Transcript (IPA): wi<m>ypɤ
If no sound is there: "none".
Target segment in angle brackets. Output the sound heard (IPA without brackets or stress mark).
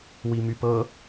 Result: m